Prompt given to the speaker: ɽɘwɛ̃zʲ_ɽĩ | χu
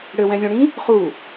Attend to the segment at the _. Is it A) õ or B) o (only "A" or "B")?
A